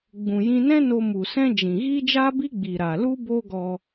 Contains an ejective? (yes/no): no